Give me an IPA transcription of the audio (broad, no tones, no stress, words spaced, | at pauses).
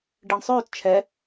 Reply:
ɖiɳsˤøːt t͡ʃʰɛ